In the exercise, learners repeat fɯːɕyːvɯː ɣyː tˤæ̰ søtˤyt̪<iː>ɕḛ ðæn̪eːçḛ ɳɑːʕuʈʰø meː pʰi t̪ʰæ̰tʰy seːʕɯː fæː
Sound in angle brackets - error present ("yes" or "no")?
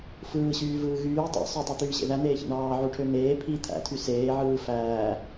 yes